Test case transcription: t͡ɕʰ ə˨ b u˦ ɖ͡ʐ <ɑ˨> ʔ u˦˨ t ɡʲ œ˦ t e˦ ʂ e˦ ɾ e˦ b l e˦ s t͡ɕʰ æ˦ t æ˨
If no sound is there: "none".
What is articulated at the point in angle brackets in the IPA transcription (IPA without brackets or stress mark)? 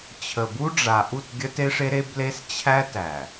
a˨